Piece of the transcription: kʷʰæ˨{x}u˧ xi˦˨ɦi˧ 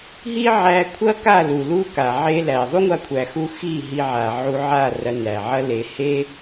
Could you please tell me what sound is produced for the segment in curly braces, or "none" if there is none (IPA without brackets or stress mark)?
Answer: x